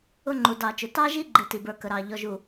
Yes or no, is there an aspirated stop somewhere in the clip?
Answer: no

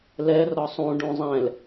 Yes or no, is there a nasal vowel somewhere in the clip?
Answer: yes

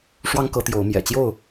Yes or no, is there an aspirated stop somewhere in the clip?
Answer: no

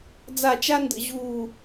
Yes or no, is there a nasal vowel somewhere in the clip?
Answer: no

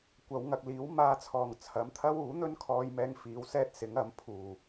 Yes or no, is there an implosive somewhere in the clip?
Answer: no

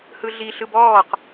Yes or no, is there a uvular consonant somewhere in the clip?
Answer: yes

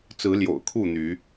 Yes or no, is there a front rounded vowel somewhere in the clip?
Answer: yes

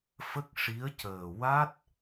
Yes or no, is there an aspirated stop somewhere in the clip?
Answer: no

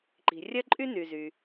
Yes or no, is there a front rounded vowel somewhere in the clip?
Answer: yes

